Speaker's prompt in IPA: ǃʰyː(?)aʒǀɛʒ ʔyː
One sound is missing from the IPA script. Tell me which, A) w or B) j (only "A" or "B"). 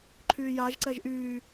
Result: B